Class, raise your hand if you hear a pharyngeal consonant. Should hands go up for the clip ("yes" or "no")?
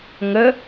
no